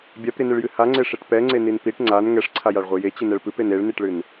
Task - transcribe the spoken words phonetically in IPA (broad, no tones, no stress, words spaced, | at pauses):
bʲapɾinɨɭjɨ haŋ͡ǀeʂeʈ pɛŋ͡ǀenin piʈ ŋ͡ǀan ŋɛʂǀʰajaɭʁʷi jet͡ɕɨnɛɭ pɨpen eɭniʈɭɨn